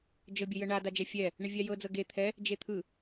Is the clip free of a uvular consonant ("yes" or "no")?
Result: yes